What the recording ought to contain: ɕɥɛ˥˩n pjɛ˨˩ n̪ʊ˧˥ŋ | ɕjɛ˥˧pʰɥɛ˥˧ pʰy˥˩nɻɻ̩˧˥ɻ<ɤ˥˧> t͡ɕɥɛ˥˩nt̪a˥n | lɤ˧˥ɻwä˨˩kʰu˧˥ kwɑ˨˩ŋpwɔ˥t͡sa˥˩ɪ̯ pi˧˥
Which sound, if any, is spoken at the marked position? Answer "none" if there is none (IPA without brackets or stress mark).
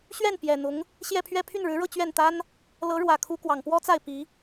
ɤ˥˧